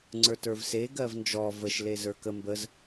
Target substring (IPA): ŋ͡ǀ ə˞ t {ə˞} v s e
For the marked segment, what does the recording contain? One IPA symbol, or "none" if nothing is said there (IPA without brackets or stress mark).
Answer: ə˞